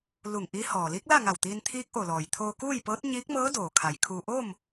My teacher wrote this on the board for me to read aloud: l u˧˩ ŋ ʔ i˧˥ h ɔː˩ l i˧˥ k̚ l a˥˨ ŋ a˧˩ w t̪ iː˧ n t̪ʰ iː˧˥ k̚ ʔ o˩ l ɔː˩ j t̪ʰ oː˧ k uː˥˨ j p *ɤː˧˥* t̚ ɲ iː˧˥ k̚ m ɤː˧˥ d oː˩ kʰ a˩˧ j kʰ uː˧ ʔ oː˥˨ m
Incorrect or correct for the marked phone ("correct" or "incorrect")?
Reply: correct